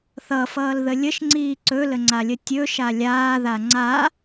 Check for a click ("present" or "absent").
present